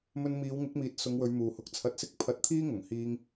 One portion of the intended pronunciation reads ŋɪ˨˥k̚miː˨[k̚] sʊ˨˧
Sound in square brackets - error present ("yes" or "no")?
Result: yes